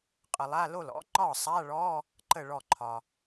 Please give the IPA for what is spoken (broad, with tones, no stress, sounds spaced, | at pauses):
qʼ ə˨ lˠ a˧˥˧ l o˥˩ l ɔ̰˨˥ ŋ͡ǃ ɒ˥˩ sˤ a˧˥˧ ɭ ɔ˧˥˧ | ǃ ə˥˩ ɭ ɔ˥˩ ǃʰ ɒ˨